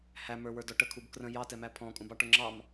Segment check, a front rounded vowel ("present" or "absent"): absent